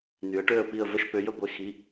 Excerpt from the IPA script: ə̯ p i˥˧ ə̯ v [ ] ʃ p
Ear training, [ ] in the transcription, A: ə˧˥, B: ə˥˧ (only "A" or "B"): B